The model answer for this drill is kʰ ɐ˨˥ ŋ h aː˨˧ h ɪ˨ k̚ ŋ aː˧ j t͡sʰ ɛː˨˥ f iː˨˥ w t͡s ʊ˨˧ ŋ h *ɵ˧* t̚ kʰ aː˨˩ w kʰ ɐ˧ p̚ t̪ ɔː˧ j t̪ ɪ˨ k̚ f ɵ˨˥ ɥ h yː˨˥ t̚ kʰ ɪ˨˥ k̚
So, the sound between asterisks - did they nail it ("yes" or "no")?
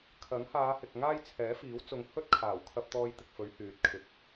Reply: no